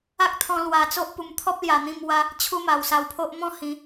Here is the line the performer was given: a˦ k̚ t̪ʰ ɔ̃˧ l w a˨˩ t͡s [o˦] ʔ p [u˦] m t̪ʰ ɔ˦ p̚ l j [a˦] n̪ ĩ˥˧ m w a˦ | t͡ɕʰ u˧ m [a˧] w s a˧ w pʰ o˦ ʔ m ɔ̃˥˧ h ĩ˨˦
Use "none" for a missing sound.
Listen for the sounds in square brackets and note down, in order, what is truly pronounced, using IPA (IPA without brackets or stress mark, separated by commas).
o˦, u˨˩, a˨˩, a˨˩